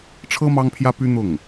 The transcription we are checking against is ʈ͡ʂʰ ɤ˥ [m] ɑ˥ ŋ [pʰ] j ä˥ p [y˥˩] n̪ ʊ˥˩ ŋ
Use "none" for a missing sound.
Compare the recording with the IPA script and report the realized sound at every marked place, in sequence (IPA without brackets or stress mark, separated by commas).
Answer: m, pʰ, y˥